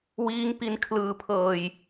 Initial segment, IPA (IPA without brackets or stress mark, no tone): w